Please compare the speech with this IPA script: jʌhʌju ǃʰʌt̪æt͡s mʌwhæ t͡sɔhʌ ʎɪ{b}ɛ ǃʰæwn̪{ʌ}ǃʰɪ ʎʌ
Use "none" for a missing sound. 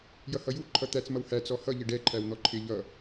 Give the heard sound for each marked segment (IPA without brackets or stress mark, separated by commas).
ɖ, ɔ